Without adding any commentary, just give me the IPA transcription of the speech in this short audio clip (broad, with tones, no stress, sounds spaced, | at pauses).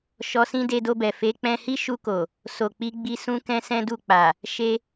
ʃ ɔ˧ s ĩ˦ d e˧ d o˧ b ɛ˨ f e˨˦ k͡p ɛ̃˧ h i˦ ʃ u˧ k o˨ | s o˨ k͡p i˨˦ ɡ͡b i˧ s ũ˦ k ɛ̃˦ s ɛ̃˦ d u˦˨ k͡p a˨ | ʃ e˧